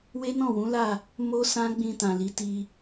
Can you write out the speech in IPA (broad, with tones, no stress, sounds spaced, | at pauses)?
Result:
w e˦ n ɔ̃˦˨ w ũ˨˦ l a˦˨ | m o˦ s ã˦ ɡ͡b ĩ˧ t ã˨ l i˨˦ t i˧